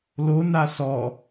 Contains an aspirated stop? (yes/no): no